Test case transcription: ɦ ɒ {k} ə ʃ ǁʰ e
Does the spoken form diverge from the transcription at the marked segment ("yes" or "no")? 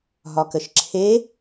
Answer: no